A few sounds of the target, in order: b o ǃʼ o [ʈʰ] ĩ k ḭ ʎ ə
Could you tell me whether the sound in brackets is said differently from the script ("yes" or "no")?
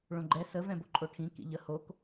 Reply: no